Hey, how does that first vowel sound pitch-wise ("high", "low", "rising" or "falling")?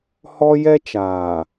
high